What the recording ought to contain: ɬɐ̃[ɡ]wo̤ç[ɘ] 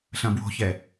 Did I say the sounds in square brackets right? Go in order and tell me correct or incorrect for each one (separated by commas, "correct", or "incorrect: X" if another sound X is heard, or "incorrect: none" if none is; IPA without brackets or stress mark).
incorrect: b, incorrect: ɛ